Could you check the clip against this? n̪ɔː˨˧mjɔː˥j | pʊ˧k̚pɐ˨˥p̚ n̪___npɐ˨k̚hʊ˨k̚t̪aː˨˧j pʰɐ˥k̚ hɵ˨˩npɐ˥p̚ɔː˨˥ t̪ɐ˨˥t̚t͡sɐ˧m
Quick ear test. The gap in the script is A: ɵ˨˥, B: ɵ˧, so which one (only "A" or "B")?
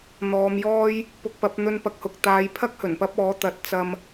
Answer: B